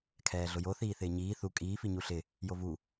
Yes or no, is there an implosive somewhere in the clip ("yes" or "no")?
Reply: no